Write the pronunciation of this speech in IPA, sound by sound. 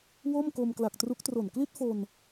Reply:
w o˥˩ m k o˧ m k l a˨˩ k̚ t r u˦˥ k̚ t r o˨˩ n k l i˥˩ t̚ f o˧ n

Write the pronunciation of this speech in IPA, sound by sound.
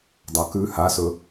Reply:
dˤ a k ʉ h a s ɵ

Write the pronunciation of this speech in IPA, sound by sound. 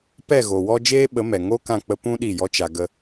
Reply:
p ɛ˦˨ ɣ o˨ w ɔ˦ d͡ʒ eː˦ ɓ ə˨˦ m ɛ˨ ŋ o˦ k ã˦˨ k͡p ə˦ p ũ˦ ɗ i˦˨ j ɔ˦ t͡ʃ a˧ ɡ ə˦

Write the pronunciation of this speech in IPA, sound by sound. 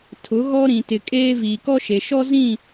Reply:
tʰ ʊ˨˦ ɣ ɔ˦ ɾ ĩ˨ t ɪ˨ kʼ eː˦ v iː˨ k ɔ˦ ʃ e˨ ʃ ɔ˦ z ĩ˦˨

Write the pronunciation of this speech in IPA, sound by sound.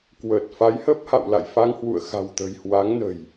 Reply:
k w əː˨˩ t̚ f a˨˦ j h ə˦˥ p̚ h a̰˧˨ w l a̰˧˨ j f a˧ ŋ h w ṵ˧˨ ə̯ x a̤˨˩ w t̪ ə̤˨˩ j h w a˨˦ ŋ n ə̤˨˩ j

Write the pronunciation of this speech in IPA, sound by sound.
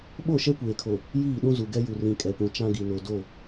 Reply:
ɓ o˦˨ ʃ ɛ˦ kʷ eː˨ kʰ o˨ | j iː˦˨ ɗ ũ˦ z u˨ ɡ ɛ˦ j u˨ r ĩ˨ kʼ ɛ˨ p ũ˨ t͡ʃ ã˦ ɡ i˨ n o˨ d o˦˨

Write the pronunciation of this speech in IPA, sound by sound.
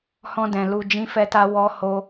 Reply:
h ɔ̃˧ d ɛ̃˨ l u˧ d͡ʒ ĩ˦ f ɛ˦ t a˦ w ɔ˦ h o˦

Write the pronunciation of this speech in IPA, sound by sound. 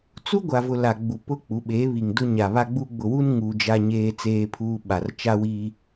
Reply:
t͡s u˦ ɡʷ a˨ v ʊ˨ l a˨ ɡ͡b u˨ p ʊ˦ k͡p u˨˦ ɓ e˨˦ β i˨ ŋ d ʊ˦ ɲ a˨ β a˦ ɡ͡b u˦ ɡ͡b ʊ˨ w u˦ n ŋ u˦ d͡ʒ a˦ ɲ eː˦ t͡s eː˦ pʰ uː˦ ɓ a˨ r t͡ʃ a˦ w i˦

